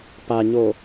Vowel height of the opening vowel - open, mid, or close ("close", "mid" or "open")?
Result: open